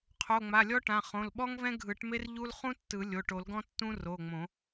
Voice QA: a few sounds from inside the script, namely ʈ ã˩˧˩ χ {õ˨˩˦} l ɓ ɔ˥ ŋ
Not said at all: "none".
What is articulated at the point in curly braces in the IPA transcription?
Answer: õ˩˧˩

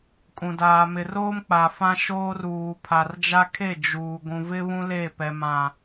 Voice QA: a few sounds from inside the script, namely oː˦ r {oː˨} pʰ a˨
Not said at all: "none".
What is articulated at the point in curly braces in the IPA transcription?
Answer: uː˨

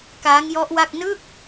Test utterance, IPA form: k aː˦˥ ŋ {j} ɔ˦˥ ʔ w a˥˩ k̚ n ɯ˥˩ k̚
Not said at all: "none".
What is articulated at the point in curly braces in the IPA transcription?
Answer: j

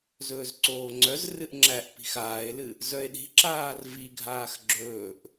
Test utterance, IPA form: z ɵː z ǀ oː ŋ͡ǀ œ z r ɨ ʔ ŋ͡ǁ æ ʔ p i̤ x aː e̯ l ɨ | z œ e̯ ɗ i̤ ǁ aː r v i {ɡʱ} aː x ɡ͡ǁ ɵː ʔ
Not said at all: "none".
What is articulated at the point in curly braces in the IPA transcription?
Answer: ɡʱ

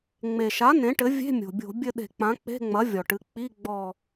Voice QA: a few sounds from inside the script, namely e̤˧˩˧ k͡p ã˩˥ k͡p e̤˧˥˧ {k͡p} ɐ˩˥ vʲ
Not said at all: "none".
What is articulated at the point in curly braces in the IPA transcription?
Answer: ŋ͡m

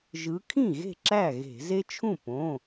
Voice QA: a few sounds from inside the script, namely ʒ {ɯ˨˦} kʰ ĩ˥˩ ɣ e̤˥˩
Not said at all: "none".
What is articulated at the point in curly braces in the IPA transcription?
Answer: ɯ˨˦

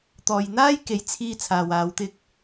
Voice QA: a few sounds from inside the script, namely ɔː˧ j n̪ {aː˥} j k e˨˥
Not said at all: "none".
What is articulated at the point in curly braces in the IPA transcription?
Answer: aː˥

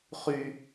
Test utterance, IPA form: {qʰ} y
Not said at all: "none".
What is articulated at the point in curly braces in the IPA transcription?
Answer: χ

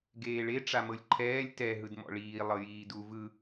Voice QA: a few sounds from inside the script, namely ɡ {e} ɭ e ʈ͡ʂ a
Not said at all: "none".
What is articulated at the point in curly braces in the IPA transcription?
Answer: eː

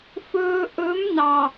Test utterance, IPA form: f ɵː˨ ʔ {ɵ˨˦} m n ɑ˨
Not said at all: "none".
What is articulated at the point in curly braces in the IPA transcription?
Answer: ɵ˨˦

